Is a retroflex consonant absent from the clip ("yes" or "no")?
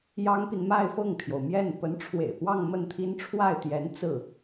no